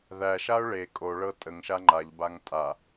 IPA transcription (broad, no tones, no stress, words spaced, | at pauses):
ðæʃaʊ̯ ɭe kʼoɭɤ tʼəŋʃa ŋ͡ǃaʎbaŋ tʼa